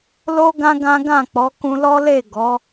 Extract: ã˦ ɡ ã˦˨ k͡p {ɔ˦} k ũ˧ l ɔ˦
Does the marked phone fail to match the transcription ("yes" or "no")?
yes